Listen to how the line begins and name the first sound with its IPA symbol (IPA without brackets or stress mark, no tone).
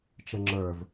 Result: t͡ʃ